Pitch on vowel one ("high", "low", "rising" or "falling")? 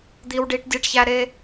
low